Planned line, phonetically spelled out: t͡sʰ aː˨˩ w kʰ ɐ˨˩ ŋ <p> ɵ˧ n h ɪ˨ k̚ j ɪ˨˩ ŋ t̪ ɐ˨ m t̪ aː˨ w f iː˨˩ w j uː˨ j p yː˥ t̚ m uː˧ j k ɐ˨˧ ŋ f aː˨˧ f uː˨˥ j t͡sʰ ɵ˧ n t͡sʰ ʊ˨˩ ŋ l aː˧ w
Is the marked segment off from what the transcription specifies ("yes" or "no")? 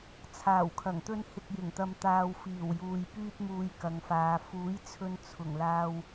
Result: yes